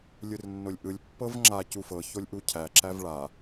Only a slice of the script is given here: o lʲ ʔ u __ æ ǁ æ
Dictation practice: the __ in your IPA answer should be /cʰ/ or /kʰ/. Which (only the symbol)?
cʰ